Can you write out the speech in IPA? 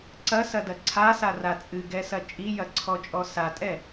ǀ ɐ s ɐ d ɐ ǀʰ a s a r a t͡sʼ ɨ ɡ ɛ s ɐ t͡ʃʼ i j ɐ ǀʰ ɔ t͡ʃʼ ɔ s a tʼ ɛ

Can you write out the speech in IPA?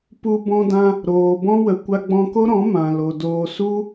p u˧ b ɔ̃˧ d ã˧ | ɾ oː˨ b ɔ̃˦ w ə˨ kʷ a˧ ɡ͡b ɔ̃˧ k o˦ ɾ ɔ̃˨˦ m ã˨ l o˨ d oː˧ s u˦

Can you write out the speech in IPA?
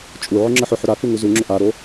t͡ʃʼ u ʕ ʏ ŋ͡ǁ ə ħ ʏ ħ ʏ ɾ a k u ŋ u z u ŋ͡ǁ ʏ ʔ a ɾ o

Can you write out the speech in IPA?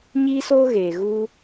ɲ iː˦ s oː˦ ɣ eː˨ ɣ u˦

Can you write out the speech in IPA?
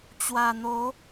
t͡ɕ w a˨˩ n̪ o˨˦

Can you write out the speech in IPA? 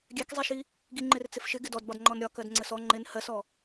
ɡʲ ɛ k zˤ i ʃ i | ɡ i ŋ͡ǃ ɪ r t͡s ɪ f ʃ ɪ ɡ ɪ d ɔ d b ɒ d ŋ͡ǃ ɔ n ɾʲ ɒ k ɜ d ŋ͡ǀ ə s ɔ ŋ͡ǃ ɪ n h ɜ s ɔ

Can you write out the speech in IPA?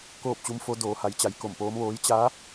k oː˥˨ p̚ t͡ɕ u˧˥ m f o˧˥ d oː˩˧ h a˩˧ j t͡ɕ a˩˧ j k o˧˩ m p oː˧˥ m ʋ oː˧˥ j t͡ɕ a˧˥

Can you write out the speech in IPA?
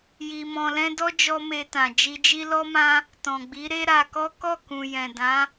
j i˧ m ɔ̃˧ l ɛ̃˦ d ɔ˦ d͡ʒ ɔ˧ m e˧ t ã˨ d͡ʒ i˧ d͡ʒ i˦ l ɔ˦ m ã˦ | t ɔ̃˨ ɡ͡b i˨˦ ɾ e˦ ɾ a˧ k ɔ˦ k ɔ˦˨ k ũ˨ j ɛ̃˨ d ã˨˦

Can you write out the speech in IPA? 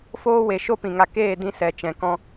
f oː˦ w e˨ ʃ o˦ p ĩ˨ ŋ a˧ k eː˦˨ d ĩ˧ s ɛ˨ t͡ʃ ɛ̃˨ k ɔ̃˧

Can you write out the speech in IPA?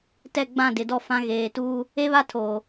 t ɛ˦˨ ɡ͡b ã˦˨ d ɪ˨ d ɔ˦ f ã˦ ɣ eː˨ t uː˦ | e˦ β a˦ tʰ oː˨

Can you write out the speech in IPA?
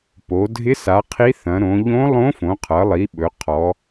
p o˩˧ dʱ ɪ˧˥ s a˩˧ qʰ i˧˥ θ ɐ̃˩˧ ɾ õ˩˧ ʎ õ˧˥ lˠ õ˧˥ f õ˩˧ qʰ ʌ˩˧ lˠ i˩˧ ɓ ɵ˩˧ qʰ ɔ˩˧

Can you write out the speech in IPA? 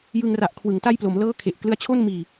j ɯ˧ ŋ r a˨˩ ʔ kʰ w ɯ˩˦ ŋ t a˥˩ j p l o˩˦ m l ɤː˥˩ kʰ e˨˩ ʔ k l ɯ˦˥ a̯ t͡ɕʰ o˥˩ n m iː˨˩

